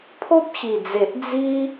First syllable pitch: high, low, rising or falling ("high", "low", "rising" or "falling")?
high